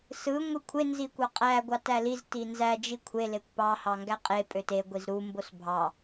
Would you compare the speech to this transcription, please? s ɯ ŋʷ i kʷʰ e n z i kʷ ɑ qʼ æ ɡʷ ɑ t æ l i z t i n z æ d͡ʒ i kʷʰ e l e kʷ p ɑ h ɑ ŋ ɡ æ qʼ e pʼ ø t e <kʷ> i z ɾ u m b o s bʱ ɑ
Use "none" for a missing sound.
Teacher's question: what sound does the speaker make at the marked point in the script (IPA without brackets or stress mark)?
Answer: ɡʷ